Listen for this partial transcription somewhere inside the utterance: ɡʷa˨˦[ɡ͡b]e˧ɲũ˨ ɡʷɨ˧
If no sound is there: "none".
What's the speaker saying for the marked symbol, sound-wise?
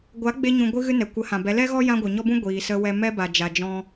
ɡ͡b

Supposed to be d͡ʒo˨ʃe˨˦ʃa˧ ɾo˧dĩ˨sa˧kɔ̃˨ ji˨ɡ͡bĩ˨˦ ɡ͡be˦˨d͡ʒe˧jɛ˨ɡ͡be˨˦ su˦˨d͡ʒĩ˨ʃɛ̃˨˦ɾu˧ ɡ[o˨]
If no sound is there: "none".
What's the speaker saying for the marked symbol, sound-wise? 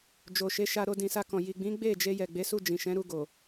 o˨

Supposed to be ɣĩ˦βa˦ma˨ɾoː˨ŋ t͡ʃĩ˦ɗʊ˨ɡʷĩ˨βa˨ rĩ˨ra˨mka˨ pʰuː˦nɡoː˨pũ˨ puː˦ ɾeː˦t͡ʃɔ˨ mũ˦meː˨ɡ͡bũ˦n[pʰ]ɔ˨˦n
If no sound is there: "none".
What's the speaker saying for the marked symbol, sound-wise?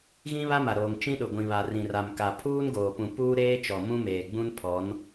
pʰ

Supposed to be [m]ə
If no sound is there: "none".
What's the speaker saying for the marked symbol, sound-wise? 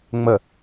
ŋ͡m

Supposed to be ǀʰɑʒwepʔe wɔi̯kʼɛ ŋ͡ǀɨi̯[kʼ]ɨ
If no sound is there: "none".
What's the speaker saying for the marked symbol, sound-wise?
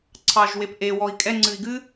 ɡ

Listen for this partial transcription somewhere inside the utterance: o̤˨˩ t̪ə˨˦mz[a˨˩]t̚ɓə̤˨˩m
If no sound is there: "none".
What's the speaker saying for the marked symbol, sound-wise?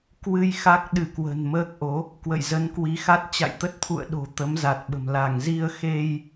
a˨˩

